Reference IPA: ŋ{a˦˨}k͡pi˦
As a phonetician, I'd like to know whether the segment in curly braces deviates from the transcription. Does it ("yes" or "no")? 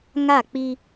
no